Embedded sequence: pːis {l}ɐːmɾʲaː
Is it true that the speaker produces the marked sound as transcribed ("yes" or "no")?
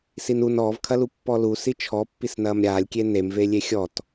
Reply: no